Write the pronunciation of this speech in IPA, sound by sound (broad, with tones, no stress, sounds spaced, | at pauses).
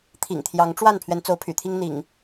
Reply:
t̪ʰ ḭ˨˩ ŋ t̪ʰ j ɑ˨˦ ŋ ʈ͡ʂ w a˥˨ n pʰ ɥ ɛ˨˦ n t͡s o˨˦ ʊ̯ pʰ y̰˨˩ t̪ʰ i˦ ŋ n̪ ḭ˨˩ ŋ